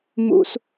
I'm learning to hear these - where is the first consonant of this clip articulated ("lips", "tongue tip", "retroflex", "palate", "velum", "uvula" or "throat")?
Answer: lips